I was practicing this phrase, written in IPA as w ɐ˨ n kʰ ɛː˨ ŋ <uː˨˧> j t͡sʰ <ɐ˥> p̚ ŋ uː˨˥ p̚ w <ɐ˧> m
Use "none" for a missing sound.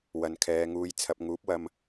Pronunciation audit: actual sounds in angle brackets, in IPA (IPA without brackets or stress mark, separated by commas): uː˨˧, ɐ˨, ɐ˧